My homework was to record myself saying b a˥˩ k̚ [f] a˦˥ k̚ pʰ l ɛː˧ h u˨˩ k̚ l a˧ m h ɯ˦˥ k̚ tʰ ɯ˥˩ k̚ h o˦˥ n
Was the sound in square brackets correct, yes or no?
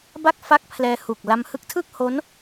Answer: yes